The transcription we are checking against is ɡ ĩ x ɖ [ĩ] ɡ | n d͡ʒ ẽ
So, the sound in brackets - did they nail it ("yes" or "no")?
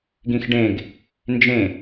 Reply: no